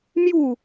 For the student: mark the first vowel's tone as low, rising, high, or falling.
falling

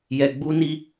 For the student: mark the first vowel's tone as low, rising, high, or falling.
low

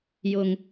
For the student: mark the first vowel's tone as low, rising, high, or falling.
low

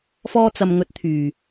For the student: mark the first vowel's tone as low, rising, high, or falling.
high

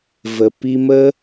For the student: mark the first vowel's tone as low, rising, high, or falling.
low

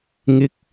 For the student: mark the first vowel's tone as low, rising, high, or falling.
high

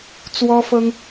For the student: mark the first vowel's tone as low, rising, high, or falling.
high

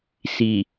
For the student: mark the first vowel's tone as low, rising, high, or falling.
low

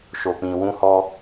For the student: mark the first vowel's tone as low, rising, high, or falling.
low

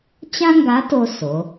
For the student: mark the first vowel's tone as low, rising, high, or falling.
high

